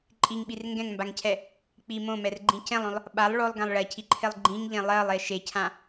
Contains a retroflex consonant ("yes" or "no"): yes